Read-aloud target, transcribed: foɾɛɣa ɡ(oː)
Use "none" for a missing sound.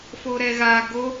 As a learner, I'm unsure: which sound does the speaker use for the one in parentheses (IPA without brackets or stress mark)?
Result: o